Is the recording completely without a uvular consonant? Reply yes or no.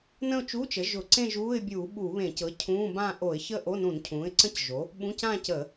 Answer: yes